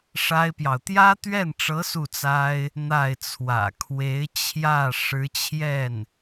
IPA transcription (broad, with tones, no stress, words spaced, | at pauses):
ʂa˥ɪ̯pjɑ˨ʊ̯ t̪jä˥t̪ɥɛ˥˩nʈ͡ʂɤ˧˥ su˥˩t͡sa˥ɪ̯ | n̪a˥˩ɪ̯t͡sʰwä̰˨˩ kʰwe˧˥ɪ̯t͡ɕʰjä˥˩ ʂɻ̩˧˥t͡ɕʰjɛ˥˩n